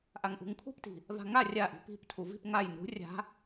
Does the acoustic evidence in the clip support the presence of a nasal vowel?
no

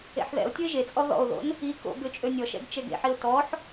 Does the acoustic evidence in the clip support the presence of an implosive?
no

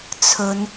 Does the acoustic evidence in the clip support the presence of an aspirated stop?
yes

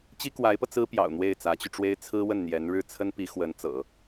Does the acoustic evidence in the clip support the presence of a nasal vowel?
no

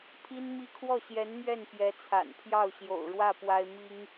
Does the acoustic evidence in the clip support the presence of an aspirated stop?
yes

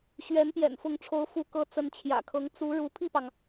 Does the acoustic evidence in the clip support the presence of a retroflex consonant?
yes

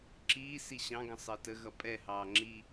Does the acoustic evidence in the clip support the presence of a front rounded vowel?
no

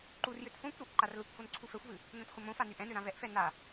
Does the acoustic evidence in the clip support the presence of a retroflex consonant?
no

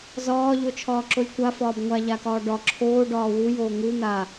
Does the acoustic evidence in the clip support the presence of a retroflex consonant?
yes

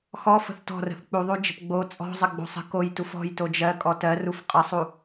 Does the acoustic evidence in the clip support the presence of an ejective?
yes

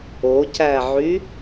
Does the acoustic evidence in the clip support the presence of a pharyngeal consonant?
yes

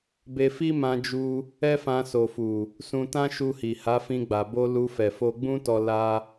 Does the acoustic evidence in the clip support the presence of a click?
no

